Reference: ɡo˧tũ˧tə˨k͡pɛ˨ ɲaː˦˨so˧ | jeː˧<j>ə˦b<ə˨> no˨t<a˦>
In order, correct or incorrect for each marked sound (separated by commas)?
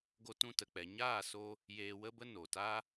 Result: incorrect, incorrect, correct